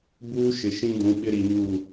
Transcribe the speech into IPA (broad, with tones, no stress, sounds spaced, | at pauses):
b uː˦ ʃ ɪ˨ ʃ ĩ˦ d ũ˨˦ ɓ ɪ˦ ɾ i˨ ɲ u˦˨